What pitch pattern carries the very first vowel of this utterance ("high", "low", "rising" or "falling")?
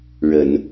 low